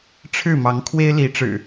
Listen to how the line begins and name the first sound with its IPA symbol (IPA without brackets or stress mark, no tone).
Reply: ʈ͡ʂʰ